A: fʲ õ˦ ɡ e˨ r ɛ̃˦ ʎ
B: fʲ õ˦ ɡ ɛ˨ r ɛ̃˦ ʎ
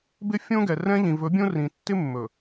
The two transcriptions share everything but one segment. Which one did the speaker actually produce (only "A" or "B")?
B